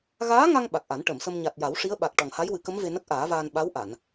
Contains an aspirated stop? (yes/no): no